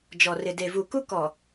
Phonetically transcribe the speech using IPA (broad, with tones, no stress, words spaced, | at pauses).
d͡ʒɔ˨ rɪ˨de˨vu˨ku˦ kɔ˨